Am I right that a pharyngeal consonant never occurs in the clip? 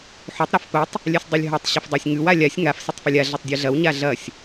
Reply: no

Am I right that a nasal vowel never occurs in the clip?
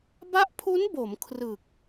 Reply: yes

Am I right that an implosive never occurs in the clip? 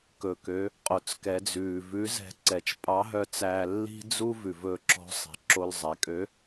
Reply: yes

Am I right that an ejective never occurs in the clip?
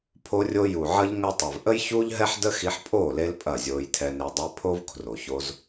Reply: no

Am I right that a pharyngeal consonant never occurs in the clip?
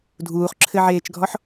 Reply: no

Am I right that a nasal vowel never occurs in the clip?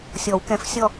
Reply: no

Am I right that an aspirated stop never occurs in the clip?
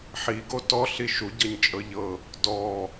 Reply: yes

